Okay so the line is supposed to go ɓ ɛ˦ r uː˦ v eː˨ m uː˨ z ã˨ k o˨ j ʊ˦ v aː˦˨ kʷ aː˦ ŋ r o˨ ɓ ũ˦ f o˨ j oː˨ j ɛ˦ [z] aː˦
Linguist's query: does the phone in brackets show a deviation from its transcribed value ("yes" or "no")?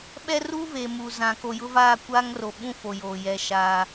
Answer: yes